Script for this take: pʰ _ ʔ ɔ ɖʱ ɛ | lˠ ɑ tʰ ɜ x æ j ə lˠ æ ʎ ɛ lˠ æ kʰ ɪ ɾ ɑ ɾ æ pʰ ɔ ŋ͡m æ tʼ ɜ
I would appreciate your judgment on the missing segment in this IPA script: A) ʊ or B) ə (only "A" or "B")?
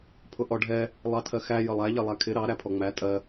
A